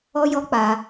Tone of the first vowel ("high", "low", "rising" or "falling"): high